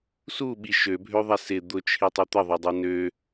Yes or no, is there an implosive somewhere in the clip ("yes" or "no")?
yes